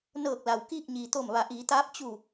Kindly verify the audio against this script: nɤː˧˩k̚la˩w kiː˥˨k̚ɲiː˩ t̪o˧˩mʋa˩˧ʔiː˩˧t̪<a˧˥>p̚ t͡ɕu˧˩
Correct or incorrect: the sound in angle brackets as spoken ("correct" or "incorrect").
incorrect